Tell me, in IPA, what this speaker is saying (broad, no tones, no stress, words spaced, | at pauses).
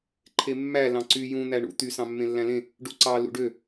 ǃʰemːæ lɑ̃ǀy jũ n̪æɳṵ t̪y sɑ̃mːẽlːæ̃lẽ | ɖuǀɑ lṵɖø